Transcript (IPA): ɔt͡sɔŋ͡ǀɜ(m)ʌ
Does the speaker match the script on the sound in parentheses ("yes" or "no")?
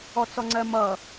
yes